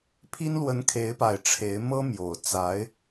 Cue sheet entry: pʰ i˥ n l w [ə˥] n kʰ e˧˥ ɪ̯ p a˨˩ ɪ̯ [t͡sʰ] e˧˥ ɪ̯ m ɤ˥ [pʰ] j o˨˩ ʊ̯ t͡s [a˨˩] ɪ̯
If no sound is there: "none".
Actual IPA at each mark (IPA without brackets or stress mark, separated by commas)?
ə˧˥, ʈ͡ʂʰ, m, a˧˥